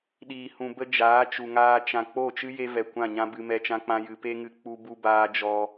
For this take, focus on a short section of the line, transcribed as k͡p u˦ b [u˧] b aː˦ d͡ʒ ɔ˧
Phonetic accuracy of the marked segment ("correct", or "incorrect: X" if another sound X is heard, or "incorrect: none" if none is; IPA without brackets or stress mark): incorrect: u˦